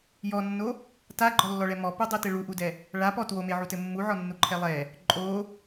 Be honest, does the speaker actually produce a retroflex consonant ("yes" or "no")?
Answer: yes